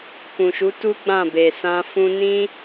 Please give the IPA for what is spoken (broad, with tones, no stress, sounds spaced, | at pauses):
k ũ˨ ʃ u˨˦ t u˦ ɡ͡b ã˦˨ b e˨ s ã˧ f ũ˧ n ĩ˦